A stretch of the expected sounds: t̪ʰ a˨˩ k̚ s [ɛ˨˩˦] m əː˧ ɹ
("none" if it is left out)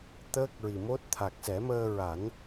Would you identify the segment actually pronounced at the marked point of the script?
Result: ɛ˨˩˦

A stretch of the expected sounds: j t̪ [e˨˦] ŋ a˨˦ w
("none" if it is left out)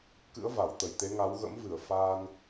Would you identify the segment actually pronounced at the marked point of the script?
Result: e˨˦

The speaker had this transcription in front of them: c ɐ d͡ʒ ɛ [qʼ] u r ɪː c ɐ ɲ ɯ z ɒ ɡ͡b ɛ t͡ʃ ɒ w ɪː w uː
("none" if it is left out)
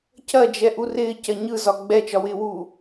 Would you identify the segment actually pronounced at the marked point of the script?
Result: ʔ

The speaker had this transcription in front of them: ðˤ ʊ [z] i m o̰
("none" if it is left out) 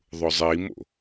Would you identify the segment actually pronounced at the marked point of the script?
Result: zˤ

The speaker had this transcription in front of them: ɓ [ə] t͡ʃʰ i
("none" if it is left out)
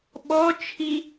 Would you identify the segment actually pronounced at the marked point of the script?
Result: ɔ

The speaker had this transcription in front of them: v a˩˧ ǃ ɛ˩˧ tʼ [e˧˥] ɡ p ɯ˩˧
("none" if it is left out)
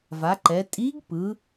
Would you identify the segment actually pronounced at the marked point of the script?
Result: i˧˥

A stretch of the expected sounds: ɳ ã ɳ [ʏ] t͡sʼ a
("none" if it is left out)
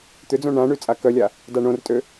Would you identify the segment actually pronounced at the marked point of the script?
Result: y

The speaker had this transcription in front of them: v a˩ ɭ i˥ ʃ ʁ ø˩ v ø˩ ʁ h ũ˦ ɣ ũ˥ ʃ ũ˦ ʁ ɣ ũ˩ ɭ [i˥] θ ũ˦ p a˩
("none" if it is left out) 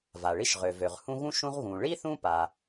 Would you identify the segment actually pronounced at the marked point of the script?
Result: i˥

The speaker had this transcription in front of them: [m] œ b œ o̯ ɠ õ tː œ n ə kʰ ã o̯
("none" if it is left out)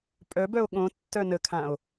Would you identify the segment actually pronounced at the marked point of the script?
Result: pʼ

